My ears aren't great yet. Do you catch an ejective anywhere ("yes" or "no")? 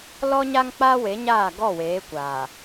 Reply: no